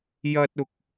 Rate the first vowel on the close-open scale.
open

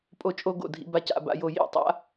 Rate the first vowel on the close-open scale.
mid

